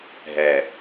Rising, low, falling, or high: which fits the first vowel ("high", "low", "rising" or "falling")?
low